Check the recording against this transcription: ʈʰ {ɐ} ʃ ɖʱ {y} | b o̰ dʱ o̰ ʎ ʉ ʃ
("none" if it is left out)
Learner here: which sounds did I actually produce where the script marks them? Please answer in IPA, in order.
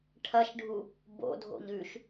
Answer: ɐ, u

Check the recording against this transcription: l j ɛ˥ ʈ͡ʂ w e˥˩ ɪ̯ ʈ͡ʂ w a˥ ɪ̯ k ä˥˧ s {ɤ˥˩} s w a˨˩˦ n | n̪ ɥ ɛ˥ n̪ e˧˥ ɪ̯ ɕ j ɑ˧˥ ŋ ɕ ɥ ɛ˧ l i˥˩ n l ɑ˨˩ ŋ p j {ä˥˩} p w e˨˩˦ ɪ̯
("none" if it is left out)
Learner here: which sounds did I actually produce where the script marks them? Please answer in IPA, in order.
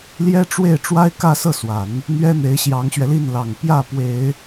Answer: ɤ˥˩, ä˥˩

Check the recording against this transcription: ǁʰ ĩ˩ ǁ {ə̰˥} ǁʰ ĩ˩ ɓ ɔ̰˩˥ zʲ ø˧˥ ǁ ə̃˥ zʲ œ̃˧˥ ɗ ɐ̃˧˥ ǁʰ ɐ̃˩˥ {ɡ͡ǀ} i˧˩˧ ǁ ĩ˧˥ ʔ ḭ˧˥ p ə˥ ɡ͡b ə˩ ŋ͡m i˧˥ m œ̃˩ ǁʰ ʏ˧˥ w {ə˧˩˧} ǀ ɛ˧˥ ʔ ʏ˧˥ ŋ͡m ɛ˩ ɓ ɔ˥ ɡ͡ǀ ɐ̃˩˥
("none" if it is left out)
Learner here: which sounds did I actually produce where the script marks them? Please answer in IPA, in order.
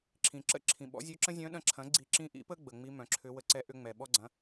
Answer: ə̰˥, ɡ͡ǀ, ə˧˩˧

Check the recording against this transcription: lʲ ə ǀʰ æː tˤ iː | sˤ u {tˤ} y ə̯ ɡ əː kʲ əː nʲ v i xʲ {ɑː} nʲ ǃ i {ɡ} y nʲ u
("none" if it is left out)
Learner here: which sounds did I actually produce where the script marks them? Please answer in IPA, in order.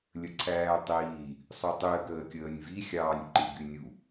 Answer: tˤ, ɑː, ɡ

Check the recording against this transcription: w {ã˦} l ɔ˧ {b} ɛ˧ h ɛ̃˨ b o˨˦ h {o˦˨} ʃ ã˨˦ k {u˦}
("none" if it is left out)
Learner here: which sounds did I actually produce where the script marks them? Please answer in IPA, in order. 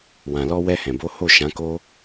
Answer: ã˨, w, o˦˨, o˦

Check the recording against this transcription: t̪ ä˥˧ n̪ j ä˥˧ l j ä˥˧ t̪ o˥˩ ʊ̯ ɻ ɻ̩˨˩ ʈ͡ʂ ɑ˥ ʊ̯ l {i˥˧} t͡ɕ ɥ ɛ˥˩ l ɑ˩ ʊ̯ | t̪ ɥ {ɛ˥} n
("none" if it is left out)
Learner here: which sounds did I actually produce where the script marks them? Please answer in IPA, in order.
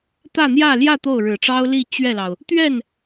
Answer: i˥˧, ɛ˥˩

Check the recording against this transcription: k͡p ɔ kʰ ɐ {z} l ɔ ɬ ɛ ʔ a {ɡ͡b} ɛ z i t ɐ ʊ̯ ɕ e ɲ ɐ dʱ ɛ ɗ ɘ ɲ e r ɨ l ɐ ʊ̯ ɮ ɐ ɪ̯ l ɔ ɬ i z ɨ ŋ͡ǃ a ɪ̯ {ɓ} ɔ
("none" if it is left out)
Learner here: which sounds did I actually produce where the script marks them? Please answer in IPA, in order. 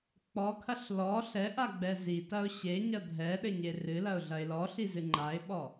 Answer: ɬ, ɡ͡b, ɓ

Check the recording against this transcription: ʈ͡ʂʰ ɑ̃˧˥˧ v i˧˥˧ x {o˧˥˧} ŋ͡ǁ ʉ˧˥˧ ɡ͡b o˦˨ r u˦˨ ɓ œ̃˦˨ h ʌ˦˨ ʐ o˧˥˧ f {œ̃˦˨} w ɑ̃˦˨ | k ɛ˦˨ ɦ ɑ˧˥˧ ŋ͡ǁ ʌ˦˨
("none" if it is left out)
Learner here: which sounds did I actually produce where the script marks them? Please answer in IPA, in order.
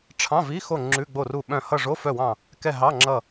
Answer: o˦˨, œ˦˨

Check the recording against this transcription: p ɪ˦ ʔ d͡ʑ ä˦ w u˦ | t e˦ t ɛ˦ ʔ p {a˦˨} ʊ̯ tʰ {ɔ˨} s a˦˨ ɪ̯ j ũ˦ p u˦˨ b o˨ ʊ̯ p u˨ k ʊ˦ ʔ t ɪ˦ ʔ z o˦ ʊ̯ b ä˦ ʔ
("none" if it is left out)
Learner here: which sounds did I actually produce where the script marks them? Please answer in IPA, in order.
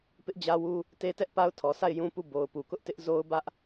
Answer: a˦, ɔ˨

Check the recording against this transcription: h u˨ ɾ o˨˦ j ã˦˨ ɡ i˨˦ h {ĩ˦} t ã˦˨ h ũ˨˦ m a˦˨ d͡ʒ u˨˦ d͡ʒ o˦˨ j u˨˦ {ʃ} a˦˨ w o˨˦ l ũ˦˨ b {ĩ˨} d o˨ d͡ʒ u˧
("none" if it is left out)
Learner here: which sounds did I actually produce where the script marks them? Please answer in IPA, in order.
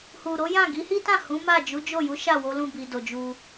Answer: i˦, ʃ, i˨

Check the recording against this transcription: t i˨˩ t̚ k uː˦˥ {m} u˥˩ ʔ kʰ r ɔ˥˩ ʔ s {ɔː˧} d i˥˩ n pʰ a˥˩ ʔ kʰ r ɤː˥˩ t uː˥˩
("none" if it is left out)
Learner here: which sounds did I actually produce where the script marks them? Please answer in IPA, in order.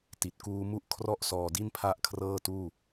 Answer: m, ɔː˧

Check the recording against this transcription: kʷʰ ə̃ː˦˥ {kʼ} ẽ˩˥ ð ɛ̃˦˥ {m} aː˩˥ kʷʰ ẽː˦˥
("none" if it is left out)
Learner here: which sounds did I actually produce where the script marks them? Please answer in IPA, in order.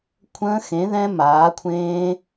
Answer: x, m

